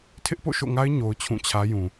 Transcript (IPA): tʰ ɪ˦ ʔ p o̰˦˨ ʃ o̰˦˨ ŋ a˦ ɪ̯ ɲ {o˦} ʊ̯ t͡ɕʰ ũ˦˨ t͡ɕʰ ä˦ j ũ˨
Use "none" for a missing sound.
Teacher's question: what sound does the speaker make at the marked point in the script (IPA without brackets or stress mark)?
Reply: o˦